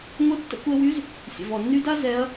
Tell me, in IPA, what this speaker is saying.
ŋʷ ə˧˥ tː ə̰˧ kʷ ɛ˧ w y˧˥ z | sʲ ə̰˩ v ɔ˩ nː y˧ d a˥ z ɛ˧˥ ɐ̯

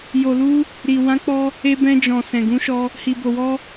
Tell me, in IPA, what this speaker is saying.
j o˨ l u˧ | ɾ i˨ w ã˨˦ k͡p ɔ˧ | e˧ b ɛ̃˧ d͡ʒ ɔ̃˨ s ɛ̃˨ ɡ ũ˨˦ ʃ ɔ˧ | h i˨ b o˨ w ɔ˧

